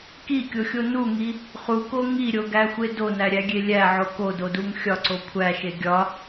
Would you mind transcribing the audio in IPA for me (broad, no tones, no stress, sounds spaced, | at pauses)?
k i kʲ o xʲ o n u ŋ i | χ u k o ŋ i ɾʲ o ɡ æ xʷ e d o n æ ɾʲ æ ɡʲ e lʲ æ ʕ o k o d o d u ŋ xʲ ɒ ǀ o kʷʰ æ ʃ e ɡʲ ɒ